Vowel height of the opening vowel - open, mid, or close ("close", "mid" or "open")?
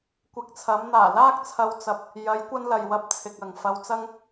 close